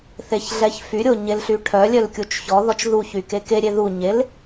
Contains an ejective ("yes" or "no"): no